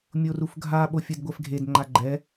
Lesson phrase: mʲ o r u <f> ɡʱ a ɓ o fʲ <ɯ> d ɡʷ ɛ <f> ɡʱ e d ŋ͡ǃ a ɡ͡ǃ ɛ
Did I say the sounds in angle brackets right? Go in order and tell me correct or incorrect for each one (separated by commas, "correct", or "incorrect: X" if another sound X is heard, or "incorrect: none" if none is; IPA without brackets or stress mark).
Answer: correct, correct, correct